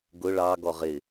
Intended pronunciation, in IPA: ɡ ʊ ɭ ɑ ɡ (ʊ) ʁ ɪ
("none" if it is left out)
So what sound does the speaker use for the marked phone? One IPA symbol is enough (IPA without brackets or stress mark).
ɔ